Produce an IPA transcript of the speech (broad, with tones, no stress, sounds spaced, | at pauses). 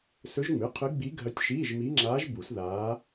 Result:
s ɵ˧˥ ʒ ŋ͡m ɨ˩˧˩ qʰ ɨ˧˥ ɡ͡b i˧˥ ɡʱ ɐ˧˥ tʲ ʃ iː˧˥˧ ʒ m i˧˥ ŋ͡ǁ aː˧˥ ʒ b u˨˩˦ s ð aː˧˥